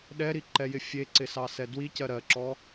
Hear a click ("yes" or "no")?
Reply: yes